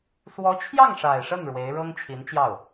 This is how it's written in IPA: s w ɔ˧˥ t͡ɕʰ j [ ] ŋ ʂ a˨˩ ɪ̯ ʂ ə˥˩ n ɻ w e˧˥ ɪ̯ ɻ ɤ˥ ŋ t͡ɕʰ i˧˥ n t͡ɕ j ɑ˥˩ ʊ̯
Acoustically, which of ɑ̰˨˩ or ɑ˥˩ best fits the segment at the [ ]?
ɑ˥˩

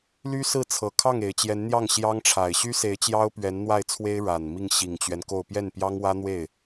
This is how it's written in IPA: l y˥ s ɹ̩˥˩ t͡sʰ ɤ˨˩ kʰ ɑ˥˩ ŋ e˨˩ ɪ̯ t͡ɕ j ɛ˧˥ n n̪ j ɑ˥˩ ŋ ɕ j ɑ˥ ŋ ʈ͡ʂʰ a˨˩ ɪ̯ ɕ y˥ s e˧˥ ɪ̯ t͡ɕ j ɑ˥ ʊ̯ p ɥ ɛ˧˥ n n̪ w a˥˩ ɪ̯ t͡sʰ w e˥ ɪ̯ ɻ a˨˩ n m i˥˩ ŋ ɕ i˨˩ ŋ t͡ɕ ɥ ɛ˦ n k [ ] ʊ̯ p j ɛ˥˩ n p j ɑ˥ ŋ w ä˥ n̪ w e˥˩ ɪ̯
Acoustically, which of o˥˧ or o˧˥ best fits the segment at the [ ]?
o˥˧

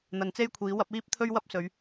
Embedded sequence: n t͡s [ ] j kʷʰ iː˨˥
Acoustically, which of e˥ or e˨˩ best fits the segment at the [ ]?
e˥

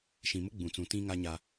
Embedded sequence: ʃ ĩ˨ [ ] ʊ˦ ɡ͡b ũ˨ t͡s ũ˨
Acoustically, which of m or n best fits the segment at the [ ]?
m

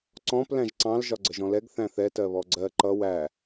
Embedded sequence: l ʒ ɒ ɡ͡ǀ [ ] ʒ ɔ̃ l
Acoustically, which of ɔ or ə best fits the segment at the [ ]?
ə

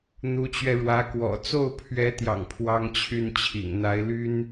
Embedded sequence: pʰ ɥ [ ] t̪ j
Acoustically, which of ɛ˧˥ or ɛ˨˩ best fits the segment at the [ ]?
ɛ˧˥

